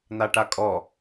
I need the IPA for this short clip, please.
n̪ a ʈ a kʼ ɔ

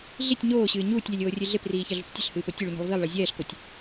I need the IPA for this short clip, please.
ɮ i tʲ ɲ oː ɕ ɨː ɲ uː tʲ lʲ ɛ lʲ oː rʲ e ɮ e p r iː ç ɐ ɮ ṳ p tʲ ɐ ɬ h ɨː p o tʲ ɨ ɭ u ɲ i̤ lˠ v i lˠ ɭ e zʲ ɛː ɬ k o tʲ

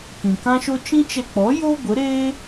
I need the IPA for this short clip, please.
k ĩ˨ k ã˦ ʃ o˦ t͡ʃ ĩ˦ t͡ʃ ɛ˧ k͡p ɔ˨˦ j o˦ ɡʷ ə˨˦ ɾ eː˦

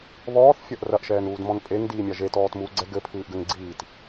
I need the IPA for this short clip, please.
β ɔː θ fʲ ɐ ʔ r ɐ ʔ ʃ ɛː n uː d m ɔ̃ n pʼ e ŋ d iː mʲ a ʒ e t ɔː t m uː ɡ͡ǀ ɛ ɡ ɘ pʰ ɨː ʔ ɡ ɘ ŋ ɡ͡ǀ iː t

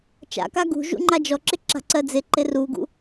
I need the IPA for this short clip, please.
t͡ʃ a̰ k a ɡ ṳ ʒ ṵ ŋ͡ǃ a d͡ʒ ɔ ǁ ɪ ǁ a̤ ǀ ɜ d͡z ɪ ǃ ɪ r u ɡ ṵ

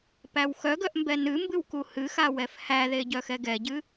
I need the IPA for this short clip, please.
p æ w x œ ɡ œ ʔ m b ɛ n ɨ m b ɨ w k u h ɨ x a w ɛ f h æ ð e ɟ œ x ɛ ɡ ɛ ɟ ɨ

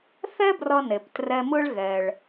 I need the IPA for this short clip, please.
θ ɛ˥ b r ʌ˧ n e˩ p t r ɛ˧ m ɯ˥ ɭ ɣ ɛ˩ ɭ

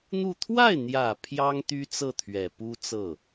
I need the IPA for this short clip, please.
n̪ u˥˧ t̪ʰ w a˥˩ ɪ̯ n̪ j ä˨˩ pʰ j ɑ˥ ŋ t̪ y˥ t͡s ɤ˥˩ t̪ʰ ɥ ɛ˨˩ p u˥ t͡s ɤ˥˩

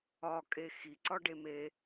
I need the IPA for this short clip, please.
ɒ kʼ e x i ǀ ɒ ɖ e m e

